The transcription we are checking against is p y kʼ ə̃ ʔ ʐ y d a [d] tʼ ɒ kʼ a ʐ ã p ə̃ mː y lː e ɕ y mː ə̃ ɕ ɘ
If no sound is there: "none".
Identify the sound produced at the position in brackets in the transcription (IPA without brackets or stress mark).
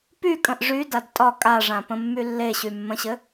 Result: d